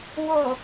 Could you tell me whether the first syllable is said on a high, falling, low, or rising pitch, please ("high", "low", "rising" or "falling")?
low